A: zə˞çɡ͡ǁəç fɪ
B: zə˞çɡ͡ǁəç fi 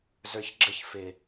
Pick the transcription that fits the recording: A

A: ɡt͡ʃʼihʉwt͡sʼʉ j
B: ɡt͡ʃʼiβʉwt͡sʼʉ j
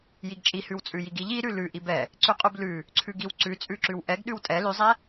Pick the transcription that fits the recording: A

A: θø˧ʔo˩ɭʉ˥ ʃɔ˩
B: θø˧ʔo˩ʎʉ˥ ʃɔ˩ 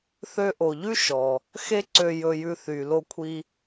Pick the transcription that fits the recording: B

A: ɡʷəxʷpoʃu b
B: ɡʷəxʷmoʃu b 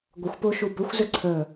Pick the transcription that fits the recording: A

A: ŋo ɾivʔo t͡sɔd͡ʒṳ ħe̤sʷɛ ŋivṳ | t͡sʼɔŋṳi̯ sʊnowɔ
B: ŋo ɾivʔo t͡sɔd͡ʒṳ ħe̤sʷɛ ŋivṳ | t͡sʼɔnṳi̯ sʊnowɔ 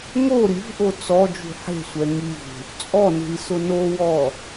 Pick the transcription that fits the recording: B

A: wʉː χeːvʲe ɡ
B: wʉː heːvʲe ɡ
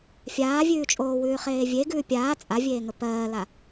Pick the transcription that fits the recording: A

